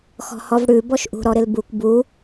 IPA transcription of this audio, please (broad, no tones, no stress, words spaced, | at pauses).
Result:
xɔ̤hɔvɽʉ bɔʃʔṳ ɾɔɾɪlbukʷ bu